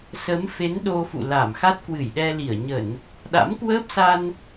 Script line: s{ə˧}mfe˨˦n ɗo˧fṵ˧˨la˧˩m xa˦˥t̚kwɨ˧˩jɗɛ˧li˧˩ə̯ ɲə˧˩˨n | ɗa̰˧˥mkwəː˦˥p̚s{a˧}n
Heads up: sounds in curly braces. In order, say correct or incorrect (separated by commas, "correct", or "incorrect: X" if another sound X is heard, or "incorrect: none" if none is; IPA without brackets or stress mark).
incorrect: ə˨˦, correct